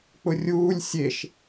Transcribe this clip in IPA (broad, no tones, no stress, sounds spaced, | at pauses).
k͡p ʊ rʲ uː lʲ sʲ e ʃ